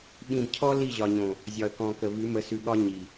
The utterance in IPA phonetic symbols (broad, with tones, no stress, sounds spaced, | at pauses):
ɓ ĩ˨ b cʰ ɔ˦ l i˦˨ ʑ ɒ˨ ɲ õ˨ | zʲ ɒ˨ ə̯ k ɔ̃˨ k ə˨ v ʉ˨˦ m ə˨˦ s ʉ˨ ɠ ɒ˦ ɲ i˨